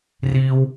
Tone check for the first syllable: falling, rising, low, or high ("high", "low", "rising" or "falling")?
high